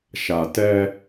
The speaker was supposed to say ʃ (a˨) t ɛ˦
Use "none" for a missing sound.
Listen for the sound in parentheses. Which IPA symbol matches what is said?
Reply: a˨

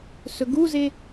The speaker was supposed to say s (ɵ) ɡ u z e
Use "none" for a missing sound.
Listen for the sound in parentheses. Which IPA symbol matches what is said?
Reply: ɵ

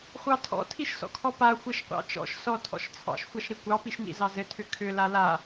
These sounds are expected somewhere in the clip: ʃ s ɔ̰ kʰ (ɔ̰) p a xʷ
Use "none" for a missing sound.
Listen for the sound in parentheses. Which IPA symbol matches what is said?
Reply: ɔ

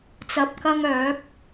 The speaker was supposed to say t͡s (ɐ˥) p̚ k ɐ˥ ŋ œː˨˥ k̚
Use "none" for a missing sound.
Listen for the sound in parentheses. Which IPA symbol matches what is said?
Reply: ɐ˧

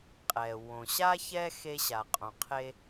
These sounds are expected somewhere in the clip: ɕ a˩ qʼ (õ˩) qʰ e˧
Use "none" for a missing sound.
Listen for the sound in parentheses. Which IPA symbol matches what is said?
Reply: õ˩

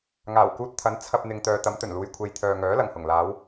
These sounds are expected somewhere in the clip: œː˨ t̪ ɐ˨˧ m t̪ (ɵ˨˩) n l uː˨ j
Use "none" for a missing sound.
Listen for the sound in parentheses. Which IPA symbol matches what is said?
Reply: ɵ˨˩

